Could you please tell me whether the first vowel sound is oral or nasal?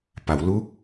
oral